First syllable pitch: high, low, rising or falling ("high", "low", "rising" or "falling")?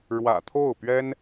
low